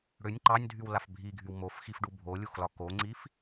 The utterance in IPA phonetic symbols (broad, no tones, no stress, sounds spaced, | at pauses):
ɽ ʏ nʲ ǃ ɑ nʲ dʱ y w l a f bʱ i ɡʱ y w m o f x i f ɖ u bʱ o lʲ u x l ɒ k o ŋ͡ǀ i f